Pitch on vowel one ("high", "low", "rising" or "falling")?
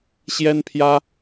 high